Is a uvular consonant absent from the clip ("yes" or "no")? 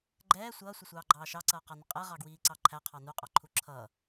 no